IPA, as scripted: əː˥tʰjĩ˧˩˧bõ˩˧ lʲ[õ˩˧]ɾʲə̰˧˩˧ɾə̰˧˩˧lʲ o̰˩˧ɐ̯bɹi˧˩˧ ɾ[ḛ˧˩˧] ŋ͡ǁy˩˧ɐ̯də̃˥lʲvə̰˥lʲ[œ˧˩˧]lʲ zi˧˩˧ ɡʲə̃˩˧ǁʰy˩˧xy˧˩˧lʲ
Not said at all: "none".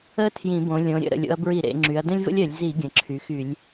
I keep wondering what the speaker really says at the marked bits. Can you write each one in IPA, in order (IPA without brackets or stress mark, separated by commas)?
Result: õ˩˧, ḛ˩˧, œ˧˩˧